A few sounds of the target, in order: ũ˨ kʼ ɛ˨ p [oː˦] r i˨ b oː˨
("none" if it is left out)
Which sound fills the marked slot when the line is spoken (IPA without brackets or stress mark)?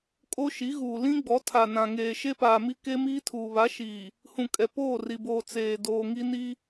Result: oː˦˨